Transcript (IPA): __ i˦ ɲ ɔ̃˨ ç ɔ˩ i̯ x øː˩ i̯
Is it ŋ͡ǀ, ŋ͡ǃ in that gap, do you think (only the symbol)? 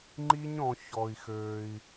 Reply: ŋ͡ǃ